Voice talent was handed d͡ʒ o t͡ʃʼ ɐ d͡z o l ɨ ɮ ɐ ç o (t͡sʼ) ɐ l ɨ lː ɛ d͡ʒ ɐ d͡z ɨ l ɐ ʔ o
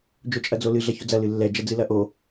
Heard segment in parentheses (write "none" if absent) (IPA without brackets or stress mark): d͡z